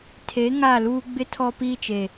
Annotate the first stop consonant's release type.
aspirated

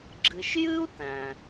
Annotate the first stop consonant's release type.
click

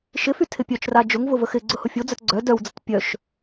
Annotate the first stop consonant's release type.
aspirated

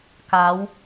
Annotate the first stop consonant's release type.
plain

